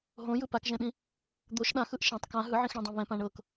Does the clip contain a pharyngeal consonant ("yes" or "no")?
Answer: yes